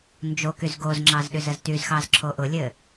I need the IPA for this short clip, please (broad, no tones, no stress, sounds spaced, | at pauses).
n d͡ʒ o k y z ɡ o z ŋ͡ǁ ɑ z ɗ y z ə z t y z x ɑ z ǁʰ o ʔ ʊ lʲ ɘ